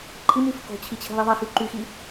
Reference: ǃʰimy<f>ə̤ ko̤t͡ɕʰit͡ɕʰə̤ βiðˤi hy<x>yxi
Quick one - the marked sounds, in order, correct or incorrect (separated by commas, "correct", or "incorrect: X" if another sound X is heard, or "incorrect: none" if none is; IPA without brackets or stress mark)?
correct, incorrect: ǃ